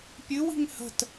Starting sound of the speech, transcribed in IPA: pʲ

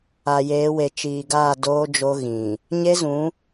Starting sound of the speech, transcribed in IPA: a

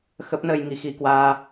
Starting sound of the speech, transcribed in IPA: x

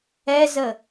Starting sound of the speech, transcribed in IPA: ɛ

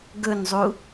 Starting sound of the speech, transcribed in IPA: ɡ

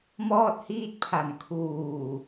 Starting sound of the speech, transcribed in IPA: m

